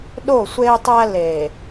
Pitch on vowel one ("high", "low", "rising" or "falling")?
falling